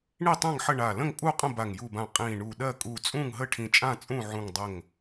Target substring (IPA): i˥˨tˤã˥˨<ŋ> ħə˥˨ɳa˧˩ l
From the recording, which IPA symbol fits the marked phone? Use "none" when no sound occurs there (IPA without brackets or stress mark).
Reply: ŋ